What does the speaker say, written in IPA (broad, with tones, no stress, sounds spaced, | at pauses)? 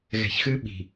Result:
ɣ ɛ̤˨ ç x ɨ˦ ɓ i̤˨